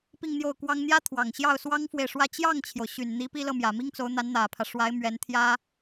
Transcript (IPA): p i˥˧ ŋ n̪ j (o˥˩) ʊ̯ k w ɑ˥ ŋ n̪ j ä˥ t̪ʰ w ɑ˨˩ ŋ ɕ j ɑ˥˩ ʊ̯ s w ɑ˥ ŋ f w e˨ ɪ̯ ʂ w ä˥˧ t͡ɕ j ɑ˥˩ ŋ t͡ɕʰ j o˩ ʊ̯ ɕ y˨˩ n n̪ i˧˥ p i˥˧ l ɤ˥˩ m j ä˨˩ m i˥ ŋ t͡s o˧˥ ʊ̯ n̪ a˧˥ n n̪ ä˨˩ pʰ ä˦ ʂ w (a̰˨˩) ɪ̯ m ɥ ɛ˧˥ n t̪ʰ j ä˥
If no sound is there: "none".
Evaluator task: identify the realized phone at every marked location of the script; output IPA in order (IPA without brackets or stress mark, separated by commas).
o˥˩, a˧˥